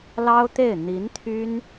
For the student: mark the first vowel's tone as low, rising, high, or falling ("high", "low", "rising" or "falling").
high